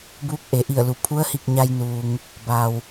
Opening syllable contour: rising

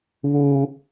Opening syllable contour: high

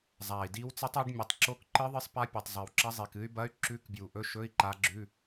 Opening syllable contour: low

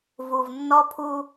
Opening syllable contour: low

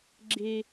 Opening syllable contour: low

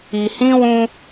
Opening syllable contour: low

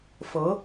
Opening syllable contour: rising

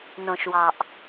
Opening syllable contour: low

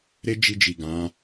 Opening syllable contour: high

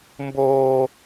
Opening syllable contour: high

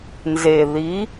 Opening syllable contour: low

